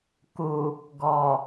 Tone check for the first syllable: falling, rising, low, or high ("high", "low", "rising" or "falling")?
low